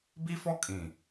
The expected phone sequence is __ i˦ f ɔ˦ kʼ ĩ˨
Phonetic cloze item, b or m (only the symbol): b